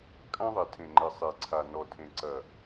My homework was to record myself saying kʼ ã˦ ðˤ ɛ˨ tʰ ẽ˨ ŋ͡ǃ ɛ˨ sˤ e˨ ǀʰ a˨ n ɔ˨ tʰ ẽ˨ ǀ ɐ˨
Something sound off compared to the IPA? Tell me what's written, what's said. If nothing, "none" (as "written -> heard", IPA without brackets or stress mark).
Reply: none